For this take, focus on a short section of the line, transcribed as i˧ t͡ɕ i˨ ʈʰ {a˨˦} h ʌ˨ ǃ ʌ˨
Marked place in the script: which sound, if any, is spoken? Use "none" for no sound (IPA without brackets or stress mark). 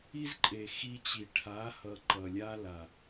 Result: a˨˦